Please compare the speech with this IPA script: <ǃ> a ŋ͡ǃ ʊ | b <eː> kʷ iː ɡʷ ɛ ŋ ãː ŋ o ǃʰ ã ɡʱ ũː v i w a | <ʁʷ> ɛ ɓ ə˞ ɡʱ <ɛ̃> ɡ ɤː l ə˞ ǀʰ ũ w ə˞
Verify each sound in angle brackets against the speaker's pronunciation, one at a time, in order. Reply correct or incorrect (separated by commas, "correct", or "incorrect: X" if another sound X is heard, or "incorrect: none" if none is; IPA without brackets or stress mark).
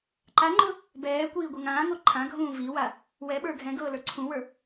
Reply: correct, incorrect: ɛː, incorrect: w, correct